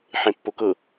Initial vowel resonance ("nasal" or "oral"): nasal